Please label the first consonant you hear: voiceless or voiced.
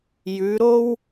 voiced